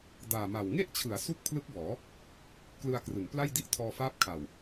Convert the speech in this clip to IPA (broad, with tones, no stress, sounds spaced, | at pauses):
d aː˨˩ m a˨˩ w ŋ e˥˩ ʔ t͡ɕʰ ɯ˩˦ a̯ s u˦˥ k̚ pʰ l ɯ˦˥ k̚ b ɔː˩˦ | k l ɯ˧ a̯ k r ɯ˩˦ ŋ p l a˥˩ j d i˥˩ ʔ tʰ ɔː˧ f aː˦˥ p̚ kʰ a˨˩ w